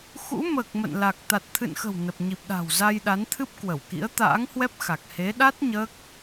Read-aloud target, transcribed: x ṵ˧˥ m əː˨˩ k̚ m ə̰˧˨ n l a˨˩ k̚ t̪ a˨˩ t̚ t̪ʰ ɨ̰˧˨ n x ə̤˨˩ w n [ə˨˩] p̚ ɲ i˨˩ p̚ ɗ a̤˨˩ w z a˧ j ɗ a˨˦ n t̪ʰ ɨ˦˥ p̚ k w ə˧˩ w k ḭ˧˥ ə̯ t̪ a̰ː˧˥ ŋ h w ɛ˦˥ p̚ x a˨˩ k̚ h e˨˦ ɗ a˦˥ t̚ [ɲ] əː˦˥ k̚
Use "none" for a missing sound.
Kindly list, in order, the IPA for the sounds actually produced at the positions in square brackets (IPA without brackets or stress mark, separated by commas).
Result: ə˨˩, ɲ